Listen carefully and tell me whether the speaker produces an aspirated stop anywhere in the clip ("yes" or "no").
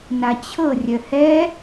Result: yes